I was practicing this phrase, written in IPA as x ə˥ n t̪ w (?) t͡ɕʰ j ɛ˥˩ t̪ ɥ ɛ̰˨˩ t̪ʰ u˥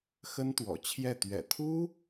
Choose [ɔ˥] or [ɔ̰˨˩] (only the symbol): ɔ̰˨˩